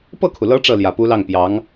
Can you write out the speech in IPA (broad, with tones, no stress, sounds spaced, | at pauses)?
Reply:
p ɤ˥˩ kʰ u˩ l ɤ˧˥ ʈ͡ʂ ɤ˥˩ l j ä˨˩ p u˧˥ l ɑ˥˩ ŋ p j ɑ˧˥ ŋ